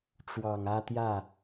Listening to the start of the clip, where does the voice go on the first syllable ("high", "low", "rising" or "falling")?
low